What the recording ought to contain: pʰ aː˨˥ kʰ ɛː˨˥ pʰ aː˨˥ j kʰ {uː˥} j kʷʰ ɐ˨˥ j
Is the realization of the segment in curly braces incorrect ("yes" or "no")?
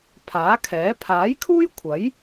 no